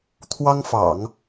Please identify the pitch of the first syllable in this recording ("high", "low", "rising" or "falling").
high